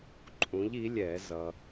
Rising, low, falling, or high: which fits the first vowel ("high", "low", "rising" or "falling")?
rising